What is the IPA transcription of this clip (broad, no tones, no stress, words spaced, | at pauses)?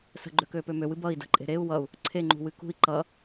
sə̤ɡ͡ǃøkøːpø møwɨ bʌi̯ də̤ǃʼe̤ ɾeu̯ wʌu̯ | ǀʰeŋ͡ǃṳwɨ kṳi̯ ǃʌ